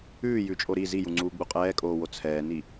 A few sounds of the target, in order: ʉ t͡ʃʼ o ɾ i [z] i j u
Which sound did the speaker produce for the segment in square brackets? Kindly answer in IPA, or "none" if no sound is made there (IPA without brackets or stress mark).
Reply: z